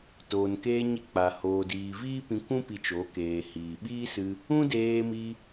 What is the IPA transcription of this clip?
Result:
toː˨nkeː˧ɲi˧ k͡pa˨hoː˨diː˨ viː˦pĩ˧kʷũ˦ pi˧t͡ʃo˨˦keː˨hiː˨ ɓiː˦sɨ˧ | ũ˦deː˧mi˧

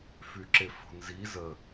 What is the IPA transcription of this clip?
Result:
fyǁefo̤nzi zə

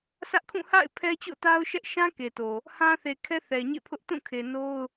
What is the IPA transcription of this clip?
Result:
sʰä˦ʔkʰũ˦˨ ha̰˦˨ɪ̯ pʰɛ˦t͡ɕo̰˦˨ta˦ʊ̯ʃɛ˦ʔ ʃã˦ke˨to˨ | hã˦θe˨kʰɛ˦ θɛ˨ɲḛ˦˨pʰʊ˦ʔ tũ˦˨kʰe˨no˦ʊ̯

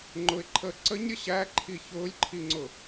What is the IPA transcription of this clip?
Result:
ŋ͡ǃʊɪ̯ǃʰəː ǀəɲɾʲə ɕæǃʰi çʊːlʲǃʰiŋ͡ǀʊ

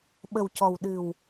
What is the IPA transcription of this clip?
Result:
ɓə˨˩wcɔ˨˩w ɗɨ˨˩w

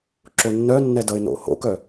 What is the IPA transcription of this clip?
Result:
ǁonːœnːɛ dʌɪ̯no̰ho̰kœ

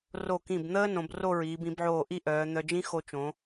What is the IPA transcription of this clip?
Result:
ro˧˩kĩ˧˩b n̪əː˥ nõ˩˧bro˥˧ɹiː˩˧b ĩ˩˧bʕoː˧˩ ʔi˥˧ ʔœː˩˧ n̪œ˧d͡ʒĩ˥ xo˧t͡ʃõ˩˧

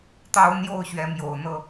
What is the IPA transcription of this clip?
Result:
t̪ɑ˦ʊ̯n̪jo˥˨ʊ̯ɕɥɛ˨˦ mjo˨˩ʊ̯ n̪ɤ˦

